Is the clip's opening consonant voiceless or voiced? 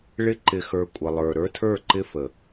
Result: voiced